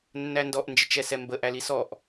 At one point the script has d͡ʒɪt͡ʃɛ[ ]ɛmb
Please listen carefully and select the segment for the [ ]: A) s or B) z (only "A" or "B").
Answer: A